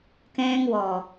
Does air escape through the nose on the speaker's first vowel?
yes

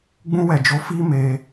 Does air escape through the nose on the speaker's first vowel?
yes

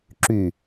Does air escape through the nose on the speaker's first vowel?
no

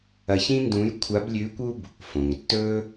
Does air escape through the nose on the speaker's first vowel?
no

